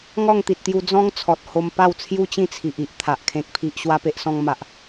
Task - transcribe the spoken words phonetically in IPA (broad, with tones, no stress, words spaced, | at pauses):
ŋɔ˥˧ŋt̪i˨t̚t̪ju˧ d͡zɔ̃˦ŋ t͡sʰɔ˨t̚ho˧m pa˥˧wt͡sʰju˦t͡ɕĩ˥˧t͡sʰi˨ʔ i˦ʔ t̪ʰa˨ʔkʰẽ˦k̚pʰi˦ʔ ɕwa˦pe˦ʔsɔ̃˦ŋ ma˦ʔ